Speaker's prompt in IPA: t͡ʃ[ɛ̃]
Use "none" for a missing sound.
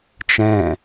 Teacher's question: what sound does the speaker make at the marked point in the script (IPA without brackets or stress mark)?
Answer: ɛ̃